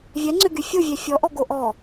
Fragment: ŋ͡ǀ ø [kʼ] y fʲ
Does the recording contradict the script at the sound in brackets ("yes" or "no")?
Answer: yes